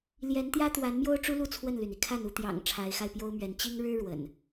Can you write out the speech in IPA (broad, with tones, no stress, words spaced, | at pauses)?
ljɛ˨˦nt̪jä˦ t̪wa˨˦nmjo˦ʊ̯ʈ͡ʂu˦lu˥˨ t͡sʰwə˥˨nly˩ni˩kʰa˥˨n u˥˨ t̪jɑ̰˨˩ŋ ʈ͡ʂʰa˨˦ɪ̯xa˧ɪ̯pjo˦ʊ̯mɥɛ˨˦n t͡ɕi˦ŋ ɻɻ̩˦ ɻwə̰˨˩n